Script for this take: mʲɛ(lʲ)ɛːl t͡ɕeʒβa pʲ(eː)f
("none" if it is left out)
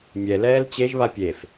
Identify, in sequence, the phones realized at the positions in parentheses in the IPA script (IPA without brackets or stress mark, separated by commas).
l, e